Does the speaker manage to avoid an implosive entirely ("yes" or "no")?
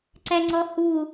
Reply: yes